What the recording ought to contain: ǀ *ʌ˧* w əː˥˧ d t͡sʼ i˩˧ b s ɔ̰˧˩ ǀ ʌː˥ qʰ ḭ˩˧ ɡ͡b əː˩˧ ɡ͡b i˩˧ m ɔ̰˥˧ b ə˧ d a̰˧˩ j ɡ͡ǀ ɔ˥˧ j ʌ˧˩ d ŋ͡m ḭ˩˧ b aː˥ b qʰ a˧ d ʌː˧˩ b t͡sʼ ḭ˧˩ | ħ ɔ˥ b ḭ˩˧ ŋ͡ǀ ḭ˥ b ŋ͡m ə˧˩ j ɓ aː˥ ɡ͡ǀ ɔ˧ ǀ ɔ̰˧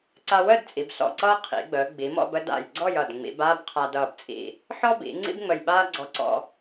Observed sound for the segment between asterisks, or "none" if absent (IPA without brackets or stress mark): a˧